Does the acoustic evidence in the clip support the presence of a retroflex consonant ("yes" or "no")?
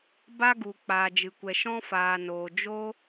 no